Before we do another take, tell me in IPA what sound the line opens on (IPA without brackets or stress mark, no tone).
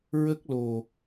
ɹ